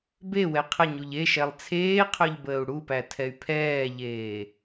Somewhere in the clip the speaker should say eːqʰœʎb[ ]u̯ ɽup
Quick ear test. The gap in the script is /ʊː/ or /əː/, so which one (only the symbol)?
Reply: əː